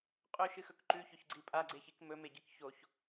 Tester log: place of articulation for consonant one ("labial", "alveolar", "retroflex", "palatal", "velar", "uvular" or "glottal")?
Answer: uvular